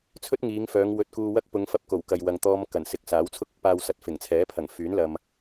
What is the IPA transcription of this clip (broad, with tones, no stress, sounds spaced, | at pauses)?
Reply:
t͡sʰ ɵ˥ t̚ ŋ iː˨˧ ŋ f œː˨˧ ŋ w ɵ˧ t̚ k uː˧ w ɐ˥ k̚ p ʊ˨˧ ŋ f ɐ˧ p̚ k o˨˩ w k ɐ˨ j w ɐ˨ ŋ t̪ ɔː˧ m k ɐ˨˩ n s ɪ˨˥ k̚ s aː˨˥ w t͡sʰ ʊ˥ k̚ ʊ˨ k̚ p aː˨ w s ɐ˨˥ t̚ f ɪ˨˩ ŋ t͡sʰ ɛː˨˥ pʰ ɐ˨˩ ŋ f yː˨˥ n l ɐ˨ m